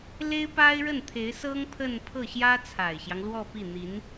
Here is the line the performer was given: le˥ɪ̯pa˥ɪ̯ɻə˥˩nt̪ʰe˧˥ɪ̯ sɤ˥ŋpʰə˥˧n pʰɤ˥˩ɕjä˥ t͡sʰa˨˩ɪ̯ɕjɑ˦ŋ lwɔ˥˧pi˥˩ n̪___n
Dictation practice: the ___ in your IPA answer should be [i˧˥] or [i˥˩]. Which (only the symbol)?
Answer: i˧˥